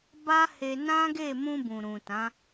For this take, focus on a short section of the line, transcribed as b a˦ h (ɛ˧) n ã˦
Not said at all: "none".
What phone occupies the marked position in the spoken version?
e˧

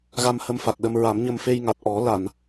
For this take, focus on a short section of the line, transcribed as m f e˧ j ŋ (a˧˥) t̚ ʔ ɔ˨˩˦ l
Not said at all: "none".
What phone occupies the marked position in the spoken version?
a˨˩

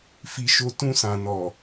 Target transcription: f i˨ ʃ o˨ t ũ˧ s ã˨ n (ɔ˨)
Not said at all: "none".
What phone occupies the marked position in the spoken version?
ɔ˨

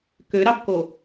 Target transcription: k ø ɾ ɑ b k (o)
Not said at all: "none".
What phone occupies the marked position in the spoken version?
o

